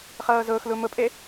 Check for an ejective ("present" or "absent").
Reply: present